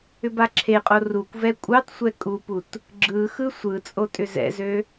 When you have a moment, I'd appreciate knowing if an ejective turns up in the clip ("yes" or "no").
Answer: yes